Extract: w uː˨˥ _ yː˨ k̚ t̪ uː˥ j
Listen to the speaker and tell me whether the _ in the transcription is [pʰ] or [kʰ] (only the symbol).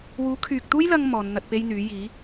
kʰ